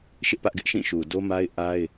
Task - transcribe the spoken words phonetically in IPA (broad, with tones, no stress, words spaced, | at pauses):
ʃɪ˦ʔpä˦ʔɡɪ˦ʔʃĩ˦˨ ʃu˨ do˦ma˦ɪ̯ ʔa˦ɪ̯